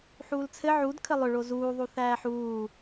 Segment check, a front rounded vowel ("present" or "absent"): present